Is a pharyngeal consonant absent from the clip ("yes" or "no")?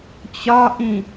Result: yes